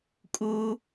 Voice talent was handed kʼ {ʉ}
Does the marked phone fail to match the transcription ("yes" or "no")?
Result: yes